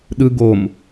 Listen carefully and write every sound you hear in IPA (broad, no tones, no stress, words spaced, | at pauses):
ɗɯ ɡom